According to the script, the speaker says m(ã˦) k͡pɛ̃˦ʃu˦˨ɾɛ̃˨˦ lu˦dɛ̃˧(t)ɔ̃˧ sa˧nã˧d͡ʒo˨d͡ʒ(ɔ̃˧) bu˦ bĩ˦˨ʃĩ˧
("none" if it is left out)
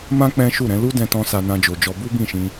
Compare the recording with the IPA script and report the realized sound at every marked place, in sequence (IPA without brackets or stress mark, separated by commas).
ã˦, t, ɔ˧